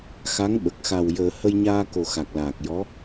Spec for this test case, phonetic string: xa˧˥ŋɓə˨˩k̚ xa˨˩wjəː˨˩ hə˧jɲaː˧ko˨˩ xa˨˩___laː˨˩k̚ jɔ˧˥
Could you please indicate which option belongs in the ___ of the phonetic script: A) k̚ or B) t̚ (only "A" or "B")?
A